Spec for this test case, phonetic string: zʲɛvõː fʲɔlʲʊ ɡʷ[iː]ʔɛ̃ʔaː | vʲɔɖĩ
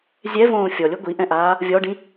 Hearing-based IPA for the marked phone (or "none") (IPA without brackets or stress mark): i